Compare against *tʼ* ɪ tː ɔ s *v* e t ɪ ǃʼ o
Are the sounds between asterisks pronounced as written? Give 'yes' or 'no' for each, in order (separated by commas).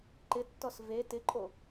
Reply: no, yes